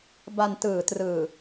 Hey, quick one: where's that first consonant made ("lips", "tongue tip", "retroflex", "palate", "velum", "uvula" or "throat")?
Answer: lips